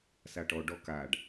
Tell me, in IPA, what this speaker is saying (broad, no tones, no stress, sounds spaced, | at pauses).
s a ʈ ɔ ɖ ɔ k a ɖ